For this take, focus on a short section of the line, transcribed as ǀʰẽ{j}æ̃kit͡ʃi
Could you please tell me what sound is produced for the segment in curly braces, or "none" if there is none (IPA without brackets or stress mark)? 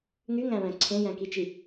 j